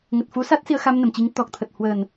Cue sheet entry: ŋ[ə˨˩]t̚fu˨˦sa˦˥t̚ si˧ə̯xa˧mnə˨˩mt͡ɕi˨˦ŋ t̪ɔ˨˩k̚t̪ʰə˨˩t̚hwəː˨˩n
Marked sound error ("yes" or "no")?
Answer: no